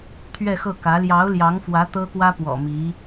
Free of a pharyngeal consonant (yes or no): yes